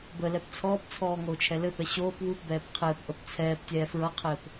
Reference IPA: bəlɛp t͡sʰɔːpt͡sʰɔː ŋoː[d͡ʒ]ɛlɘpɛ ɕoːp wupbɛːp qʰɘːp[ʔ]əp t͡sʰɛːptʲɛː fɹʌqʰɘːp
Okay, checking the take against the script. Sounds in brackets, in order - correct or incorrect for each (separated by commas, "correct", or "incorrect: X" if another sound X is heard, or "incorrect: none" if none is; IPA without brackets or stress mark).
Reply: incorrect: t͡ʃʰ, correct